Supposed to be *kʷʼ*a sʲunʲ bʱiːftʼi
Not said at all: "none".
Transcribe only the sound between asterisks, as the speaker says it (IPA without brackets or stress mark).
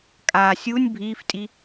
kʼ